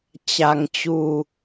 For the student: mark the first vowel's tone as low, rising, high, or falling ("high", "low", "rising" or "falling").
low